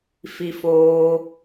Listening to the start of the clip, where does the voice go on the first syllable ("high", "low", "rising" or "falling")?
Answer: high